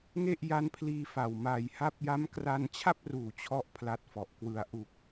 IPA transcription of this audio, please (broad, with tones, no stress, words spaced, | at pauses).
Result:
ŋe˥˩ʔja˦˥npʰliː˧ fa˨˩wmaː˧j ha˦˥p̚ja˦˥mkra˧n t͡ɕʰa˥˩p̚ruː˨˩ t͡ɕʰɔ˥˩ʔpʰla˦˥t̚fɔ˨˩ʔkwɯ˧a̯ ʔu˨˩k̚